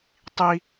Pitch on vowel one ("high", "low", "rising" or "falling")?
high